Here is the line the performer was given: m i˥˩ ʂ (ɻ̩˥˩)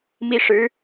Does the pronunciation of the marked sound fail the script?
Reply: yes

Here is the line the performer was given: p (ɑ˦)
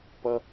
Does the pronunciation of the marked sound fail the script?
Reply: yes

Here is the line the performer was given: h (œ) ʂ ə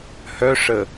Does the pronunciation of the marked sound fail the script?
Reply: no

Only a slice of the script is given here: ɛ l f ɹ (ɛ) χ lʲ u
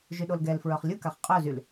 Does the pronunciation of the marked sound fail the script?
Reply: yes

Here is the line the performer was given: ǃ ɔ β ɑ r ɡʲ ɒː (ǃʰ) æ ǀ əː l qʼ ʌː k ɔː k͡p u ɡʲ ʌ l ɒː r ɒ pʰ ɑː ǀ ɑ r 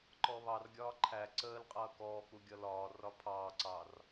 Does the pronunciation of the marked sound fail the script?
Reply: no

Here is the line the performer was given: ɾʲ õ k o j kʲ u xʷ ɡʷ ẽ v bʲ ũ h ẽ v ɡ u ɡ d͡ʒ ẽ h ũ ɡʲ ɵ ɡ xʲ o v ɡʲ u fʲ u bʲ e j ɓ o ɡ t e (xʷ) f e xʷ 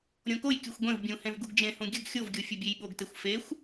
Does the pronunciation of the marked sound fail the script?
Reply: no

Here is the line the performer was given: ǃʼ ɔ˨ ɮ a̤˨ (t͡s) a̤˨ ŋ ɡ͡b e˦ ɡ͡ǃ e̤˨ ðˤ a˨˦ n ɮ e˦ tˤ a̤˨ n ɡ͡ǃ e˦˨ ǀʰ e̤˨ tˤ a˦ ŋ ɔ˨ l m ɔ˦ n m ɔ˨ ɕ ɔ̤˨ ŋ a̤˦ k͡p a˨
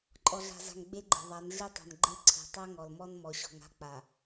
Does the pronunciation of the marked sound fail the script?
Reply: yes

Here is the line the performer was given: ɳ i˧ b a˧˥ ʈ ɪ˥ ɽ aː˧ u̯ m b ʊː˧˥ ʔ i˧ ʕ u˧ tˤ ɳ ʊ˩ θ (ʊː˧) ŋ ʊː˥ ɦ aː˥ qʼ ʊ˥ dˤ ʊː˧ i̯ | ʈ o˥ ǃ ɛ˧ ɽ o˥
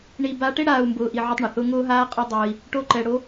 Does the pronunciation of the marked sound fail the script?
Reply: yes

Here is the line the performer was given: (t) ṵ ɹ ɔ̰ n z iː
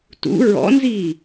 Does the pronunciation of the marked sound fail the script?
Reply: no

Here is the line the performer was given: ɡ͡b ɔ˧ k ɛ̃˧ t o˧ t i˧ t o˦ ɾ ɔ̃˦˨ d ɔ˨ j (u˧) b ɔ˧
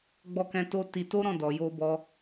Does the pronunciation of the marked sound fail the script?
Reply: yes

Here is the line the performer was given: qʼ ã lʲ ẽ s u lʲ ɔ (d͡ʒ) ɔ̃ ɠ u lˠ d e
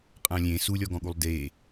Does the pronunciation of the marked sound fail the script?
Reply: yes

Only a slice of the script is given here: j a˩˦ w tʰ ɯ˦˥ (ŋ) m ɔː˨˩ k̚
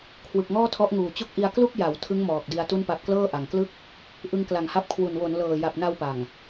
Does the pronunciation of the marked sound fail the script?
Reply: no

